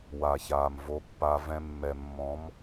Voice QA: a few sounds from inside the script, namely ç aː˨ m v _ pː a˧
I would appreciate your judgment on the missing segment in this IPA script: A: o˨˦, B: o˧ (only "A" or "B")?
A